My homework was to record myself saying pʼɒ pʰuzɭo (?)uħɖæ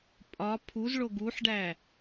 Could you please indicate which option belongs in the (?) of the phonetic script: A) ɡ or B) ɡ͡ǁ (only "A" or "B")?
A